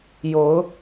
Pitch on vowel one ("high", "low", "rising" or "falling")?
rising